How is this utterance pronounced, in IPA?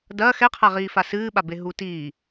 d ɐ x ɛ qʰ a ʁ iː f a s ɨː ɓ a b e ɦ u t iː

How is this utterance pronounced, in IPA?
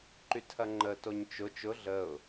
ǃ y tʰ ɐ ŋ͡ǃ ə t o ɲ t͡ʃ ʊ t͡ʃ ʊ ɮ ə ʊ̯

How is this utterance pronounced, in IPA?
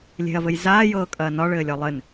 lʲ e̤ ɐ̯ v ɘ j z aː j ɤː kʼ ɐː n ɒ ɭ ɘː lʲ ɒ lˠ ɘ n

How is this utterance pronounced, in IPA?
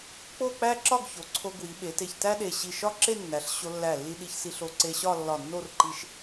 k͡p o˥˧ k͡p æ˥ ǁ ɒ˥˧ ɡ ç o˩˧ ǀʰ o˧ ɡ w i˩˧ ɓ e˩˧ t e˧˩ ç t æ˥ ɗ e˧˩ ɕ i˧˩ ʃ ɒ˥ ǁ e˥˧ nː æ˩˧ ɬ ɕ o˧ lː æ˧˩ lː i˧ ɗ i˧ ç s i˧ ɬ o˧ ǀ e˧ ɕ ɒ˥˧ lː ɒ˧˩ nː o˥˧ r ǃ i˧ ʃ

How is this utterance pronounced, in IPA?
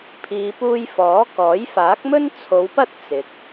pʰ iː˨ p uː˧ j f ɔː˨˥ k ɔː˨˥ j f aː˨˥ k̚ m ɵ˥ n t͡sʰ o˨˧ w p ɐ˥ t̚ t͡s ɪ˨ k̚

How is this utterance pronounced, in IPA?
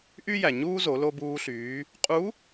ʔ y˥ j æ˩ ɲ uː˥ z o˩˧ l o˧ b uː˧ ɬ yː˩˧ | qʼ u˧˥

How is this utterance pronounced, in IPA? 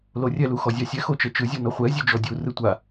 l o rʲ ɛ l u x ɔ zʲ a sʲ ɛ x o t͡ʃ ɛ t͡ʃ ɯ zʲ o n ɔ χʷ ɛ zʲ ʉ d͡ʒ ɔ dʲ u r ɯ tʷ a

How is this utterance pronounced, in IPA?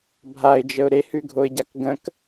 bʱ a ɪ̯ d͡ʒ ə ʊ̯ ɾ e h ʉ ɡʱ o ɪ̯ ɟ a k ɡ ə̃ k

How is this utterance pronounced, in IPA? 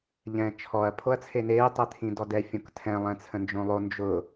ʎ ɛ̃ː t͡ʃʰ ɔ ɐ̯ pʰ o ɐ̯ t͡sʰ e n eː tˤ ɛ t̪ʰ ĩ d ɔ d ɛ fʲ õ k tʰ ɛ̃ lˠ ɛ̃ t͡sʰ ə̃ n d͡ʒ õ lˠ o n d͡ʒ ʊ

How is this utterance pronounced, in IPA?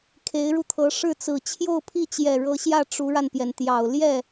kʰ e˧˥ ɪ̯ ɻ u˧ t̪ʰ ɤ˧˥ ʂ ɻ̩˥˩ t͡s ɹ̩˨˩ t͡ɕʰ j o˥˧ ʊ̯ pʰ i˥˩ t͡ɕ j ɛ˨˩ ɻ ɤ˧˥ ɕ j ä˥˩ ʈ͡ʂ u˧˥ ɻ a˧ n p j ɛ˩ n t̪ j ɑ˨˩ ʊ̯ l j ɛ˥˩

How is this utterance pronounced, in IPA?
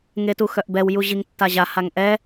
ŋ e t u x œ ʔ b ɛ w j u ʑ i ŋ tː a ʑ a h a ŋ ʔ ɛ

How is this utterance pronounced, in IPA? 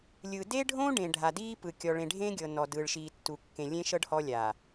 lʲ ɯ˨ d e˦ ɖʱ õ˦ ɖ ẽ˨ ɖʱ a˨ d iː˦ p ɯ˨ kʲ ɔ˨ ɭ ẽ˨ ɖʱ ẽ˦ ɡʲ ɤ˨ n ɔ˨ d ɯː˨ ɭ ʃ iː˨ tː u˨ kː ẽ˨ lʲ ẽ˦ ʃ ɤ˦ ɖ h ɔ˦ lʲ a˨

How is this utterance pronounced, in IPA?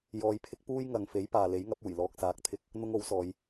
j ɔː˧ j pʰ ɪ˥ k̚ p uː˥ j ŋ ɐ˨ ŋ f e˨˥ j p aː˨ l e˨˥ j ŋ ɐ˨˥ p̚ uː˨˩ j l ɔː˧ k̚ s aː˨˥ k̚ t̪ʰ ɪ˧ k̚ | n̪ ʊ˥ ŋ o˨˥ w s ɔː˨˧ j

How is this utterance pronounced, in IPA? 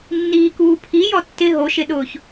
nː iː k uː pʰ i j ɔ tː ɪ ɦ o ʃ ɪ ɗ ʊː ç

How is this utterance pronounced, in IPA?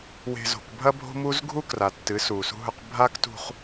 w e̤˨ z o̤˨ k bʱ ɐ˦ bʱ o̤˦ m u˦ z ɡʱ u˦ k r a˨ tː ɨ˨˦ s uː˨ s ṳ˦ ɦ ɵ˦ q bʱ a˦ k t ṳ˦ χ

